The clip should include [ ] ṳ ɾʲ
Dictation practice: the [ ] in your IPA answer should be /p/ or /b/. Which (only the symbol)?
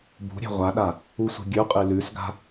b